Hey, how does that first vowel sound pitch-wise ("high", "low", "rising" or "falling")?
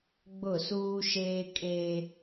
falling